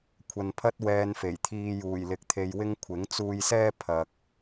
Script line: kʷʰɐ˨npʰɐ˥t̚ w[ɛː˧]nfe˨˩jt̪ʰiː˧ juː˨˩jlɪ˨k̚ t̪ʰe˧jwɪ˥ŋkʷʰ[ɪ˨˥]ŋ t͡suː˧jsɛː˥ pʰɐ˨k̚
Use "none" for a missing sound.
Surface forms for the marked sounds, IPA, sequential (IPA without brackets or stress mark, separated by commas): ɛː˧, ɪ˨˥